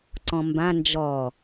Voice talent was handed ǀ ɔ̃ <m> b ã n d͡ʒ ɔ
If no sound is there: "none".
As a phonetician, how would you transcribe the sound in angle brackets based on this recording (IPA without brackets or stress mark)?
m